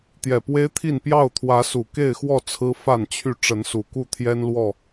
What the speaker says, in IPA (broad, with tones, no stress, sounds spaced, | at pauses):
t̪ j ɛ˨˩ p w e˦ ɪ̯ t̪ʰ i˥˨ n p j ɑ˥˨ ʊ̯ t̪ʰ w ä˨˦ s u˨˩ k e˥˨ ɪ̯ x w ɔ˥˨ t͡sʰ ɹ̩˦ f a˥˨ n t͡ɕʰ y˥˨ ʈ͡ʂ ə˨˦ n s u˨˩ k u˥˨ t̪ʰ j ɛ˦ n l w ɔ˥˨